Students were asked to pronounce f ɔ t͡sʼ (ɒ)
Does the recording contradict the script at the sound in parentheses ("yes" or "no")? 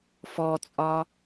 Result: no